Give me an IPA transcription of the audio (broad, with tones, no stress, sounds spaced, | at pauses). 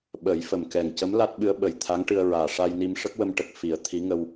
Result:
ɓ əː˨˩˦ j f ə˨˩ m k ɛ˨˩ ŋ c ə˧˥ m l a˦˥ t̚ ɓ ɨ˧˥ ə̯ ɓ ə˨˩ j t̪ʰ a˧˥ ŋ ʈ ɨ˧ ə̯ ɹ aː˨˩ ʂ a˧ j n i˧ m ʂ ə˦˥ k̚ w ə˧ m ʈ ə˨˩ k̚ f i˨˩˦ ə̯ t̪ʰ i˧˥ ŋ ə˧ w